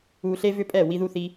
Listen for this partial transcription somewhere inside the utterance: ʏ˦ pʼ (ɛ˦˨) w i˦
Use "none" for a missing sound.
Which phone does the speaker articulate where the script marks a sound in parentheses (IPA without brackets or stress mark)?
ɛ˦˨